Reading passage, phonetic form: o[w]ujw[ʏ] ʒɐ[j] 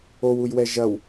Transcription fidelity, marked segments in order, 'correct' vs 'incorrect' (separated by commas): correct, incorrect, incorrect